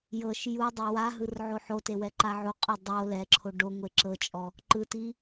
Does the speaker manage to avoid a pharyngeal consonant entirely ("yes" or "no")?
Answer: no